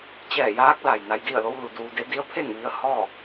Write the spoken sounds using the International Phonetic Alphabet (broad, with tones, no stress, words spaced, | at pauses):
t͡ɕɛː˧˩ jaː˧˥k̚la˩j na˧jdi˥˨ə̯lo˧˥w lu˩duː˧de˧˥ di˧˥ə̯pʰe˥˨ŋʋi˧ə̯ hɔː˥˨